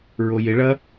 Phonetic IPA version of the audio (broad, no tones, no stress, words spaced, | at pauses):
ɹojɪɭɐ